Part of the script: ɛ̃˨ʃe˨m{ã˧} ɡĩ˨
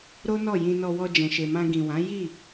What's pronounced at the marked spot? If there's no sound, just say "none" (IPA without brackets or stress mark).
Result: ã˧